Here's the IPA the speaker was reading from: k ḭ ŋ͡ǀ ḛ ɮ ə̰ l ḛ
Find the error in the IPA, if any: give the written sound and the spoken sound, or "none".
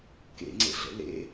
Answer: ḭ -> ḛ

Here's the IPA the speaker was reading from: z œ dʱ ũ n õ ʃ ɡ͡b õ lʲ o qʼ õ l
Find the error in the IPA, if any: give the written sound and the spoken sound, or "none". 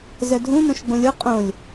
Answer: l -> lʲ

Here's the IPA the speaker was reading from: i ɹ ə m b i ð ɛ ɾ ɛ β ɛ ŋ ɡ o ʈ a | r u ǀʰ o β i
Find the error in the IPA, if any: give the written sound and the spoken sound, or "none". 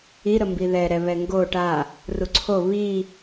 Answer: ɹ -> ɾ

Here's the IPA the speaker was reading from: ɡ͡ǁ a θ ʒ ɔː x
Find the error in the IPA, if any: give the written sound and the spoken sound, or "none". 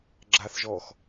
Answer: none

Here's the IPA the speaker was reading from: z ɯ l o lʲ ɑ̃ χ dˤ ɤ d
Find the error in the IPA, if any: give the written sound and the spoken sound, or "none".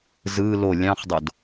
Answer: ɤ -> o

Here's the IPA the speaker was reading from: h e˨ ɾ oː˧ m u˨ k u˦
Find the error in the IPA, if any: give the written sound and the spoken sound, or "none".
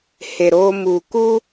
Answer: none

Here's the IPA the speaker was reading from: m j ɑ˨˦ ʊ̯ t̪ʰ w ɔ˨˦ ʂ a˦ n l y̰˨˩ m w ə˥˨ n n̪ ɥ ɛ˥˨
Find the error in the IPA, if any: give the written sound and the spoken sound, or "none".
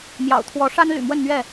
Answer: ɑ˨˦ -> ɑ̰˨˩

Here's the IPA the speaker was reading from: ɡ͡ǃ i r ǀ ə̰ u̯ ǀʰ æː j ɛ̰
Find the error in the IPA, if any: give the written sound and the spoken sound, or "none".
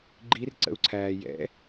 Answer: none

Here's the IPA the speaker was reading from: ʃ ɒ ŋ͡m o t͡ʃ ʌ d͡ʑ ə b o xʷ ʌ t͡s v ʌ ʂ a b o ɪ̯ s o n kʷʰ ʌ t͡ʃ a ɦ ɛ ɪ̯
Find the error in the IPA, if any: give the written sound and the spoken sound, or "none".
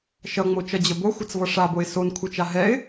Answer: ɒ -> ʌ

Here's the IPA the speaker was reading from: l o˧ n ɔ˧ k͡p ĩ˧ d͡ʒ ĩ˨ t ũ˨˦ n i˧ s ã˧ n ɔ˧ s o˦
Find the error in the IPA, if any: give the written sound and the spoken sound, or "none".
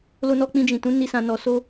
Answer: none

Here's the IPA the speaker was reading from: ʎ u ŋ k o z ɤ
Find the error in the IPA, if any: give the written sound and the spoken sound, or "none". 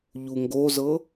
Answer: k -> ɡ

